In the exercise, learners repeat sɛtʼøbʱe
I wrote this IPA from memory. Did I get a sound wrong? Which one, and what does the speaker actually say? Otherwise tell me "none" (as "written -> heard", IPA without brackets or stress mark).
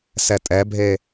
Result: ø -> ɛ